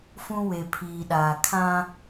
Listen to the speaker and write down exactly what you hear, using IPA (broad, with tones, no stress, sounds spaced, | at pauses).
f ũ˦ w e˨ pʰ iː˨ ɗ aː˨ kʰ ã˦